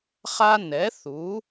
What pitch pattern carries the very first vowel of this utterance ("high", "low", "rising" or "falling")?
high